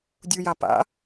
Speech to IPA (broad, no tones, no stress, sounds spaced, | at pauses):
dʲ u j a p a̰